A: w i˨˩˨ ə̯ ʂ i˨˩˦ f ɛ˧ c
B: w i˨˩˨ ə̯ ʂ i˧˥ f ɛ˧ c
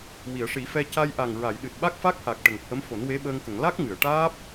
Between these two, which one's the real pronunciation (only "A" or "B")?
A